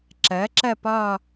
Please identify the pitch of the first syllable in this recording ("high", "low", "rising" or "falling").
rising